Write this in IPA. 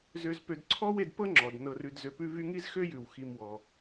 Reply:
z ø˨ z p ø˨ d ǀʰ ɔ˦ w e˨ d p ɤ˥ ŋ͡ǁ ɔ˩ d n ɤ˨ r ʉ˨ d z ø˨ p ʉ˦ v y˦ ŋ i˥ z x ø˥ j ʉ˩ w x i˨ m w ɔ˩

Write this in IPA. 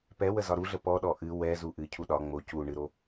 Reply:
p ɛ w ə z ɒ ɾ u ɮ ə p ɔ ɗ ɔ ʔ ɨ w ɛ z u ʔ ɨ cʰ u ɗ ɒ ŋ͡m o c u ɳ ɨ ɾ o

